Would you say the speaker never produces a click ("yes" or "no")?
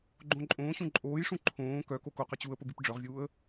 no